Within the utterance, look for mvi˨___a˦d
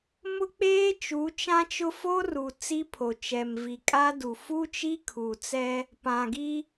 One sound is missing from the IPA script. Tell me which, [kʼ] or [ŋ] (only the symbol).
kʼ